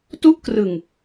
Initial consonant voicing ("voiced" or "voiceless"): voiceless